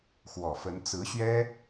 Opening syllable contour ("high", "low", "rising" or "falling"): low